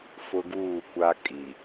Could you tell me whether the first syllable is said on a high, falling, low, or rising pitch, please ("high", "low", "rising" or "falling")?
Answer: high